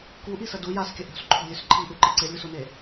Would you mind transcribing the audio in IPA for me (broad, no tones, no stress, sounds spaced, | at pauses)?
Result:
k u ʔ i s ɐ d u j a s kʲ ɐ ʔ o̤ s ǃʰ o̤ lʲ ʉ s ǃʰ i ʔ ʉ ǃ ɨ ǀ e lʲ u s o n e